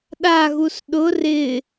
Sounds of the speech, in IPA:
ɗaɣus ɗʊ rɪ

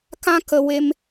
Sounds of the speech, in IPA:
kã˦ kə˧ we˧m

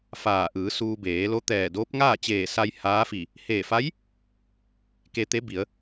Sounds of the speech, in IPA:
faː˧˩ʔɯː˩˧suː˧ beː˩˧lo˧˥ t̪ɛː˧˩doː˧˥p̚ ŋaː˥˨t͡ɕeː˧˩sa˧j haː˧˥fi˧˩ | heː˧˩fa˧˥j | ke˧t̪e˧˥bi˩˧ə̯

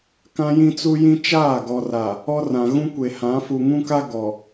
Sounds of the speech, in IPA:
kã˦jĩ˦t͡su˦jĩ˦ t͡ʃaː˦˨ɡɔ˨ra˨ | ɔ˦ rã˨ ɣũ˦ kʷe˨hã˨˦fu˨ ŋũ˦ka˦ ɡɔ˨

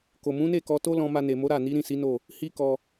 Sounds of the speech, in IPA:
ko˨mũ˨˦ne˦˨kɔ˧ to˦lɔ̃˧ ma˧ne˨mo˨˦ ɾa˦˨ni˨˦ ɾĩ˦˨si˨˦no˦˨ | hi˦kɔ˧

